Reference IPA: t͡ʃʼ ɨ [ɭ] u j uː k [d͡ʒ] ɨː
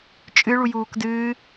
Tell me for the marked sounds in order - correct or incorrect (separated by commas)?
correct, incorrect